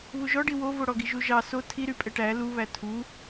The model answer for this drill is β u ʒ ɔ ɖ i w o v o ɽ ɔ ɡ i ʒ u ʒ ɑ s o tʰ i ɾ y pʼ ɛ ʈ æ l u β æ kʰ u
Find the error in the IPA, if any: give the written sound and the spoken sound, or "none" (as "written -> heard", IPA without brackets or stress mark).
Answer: kʰ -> tʰ